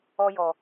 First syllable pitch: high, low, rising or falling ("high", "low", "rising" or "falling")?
high